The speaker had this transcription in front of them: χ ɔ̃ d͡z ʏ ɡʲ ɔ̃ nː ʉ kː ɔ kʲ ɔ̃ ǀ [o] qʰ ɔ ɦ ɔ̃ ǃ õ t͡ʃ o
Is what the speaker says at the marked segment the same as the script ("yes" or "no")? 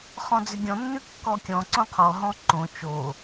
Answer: no